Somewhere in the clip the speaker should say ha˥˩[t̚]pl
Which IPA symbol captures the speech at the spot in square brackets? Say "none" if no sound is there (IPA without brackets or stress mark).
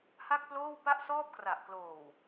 k̚